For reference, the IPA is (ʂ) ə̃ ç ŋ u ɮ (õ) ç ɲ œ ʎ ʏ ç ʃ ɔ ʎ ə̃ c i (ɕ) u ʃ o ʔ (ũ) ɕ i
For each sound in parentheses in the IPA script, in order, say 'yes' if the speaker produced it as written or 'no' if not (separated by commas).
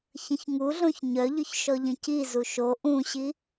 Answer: no, yes, no, yes